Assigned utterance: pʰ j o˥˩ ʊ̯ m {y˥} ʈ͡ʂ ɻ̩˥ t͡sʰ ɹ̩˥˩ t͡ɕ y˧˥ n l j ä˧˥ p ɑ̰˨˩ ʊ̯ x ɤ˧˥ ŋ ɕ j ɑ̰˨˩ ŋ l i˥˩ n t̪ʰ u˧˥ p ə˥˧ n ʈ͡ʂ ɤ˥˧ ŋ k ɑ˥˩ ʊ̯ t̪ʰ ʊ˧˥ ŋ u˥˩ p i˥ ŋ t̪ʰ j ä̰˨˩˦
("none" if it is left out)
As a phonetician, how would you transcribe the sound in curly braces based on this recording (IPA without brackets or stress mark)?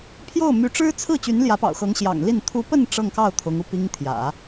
y˧˥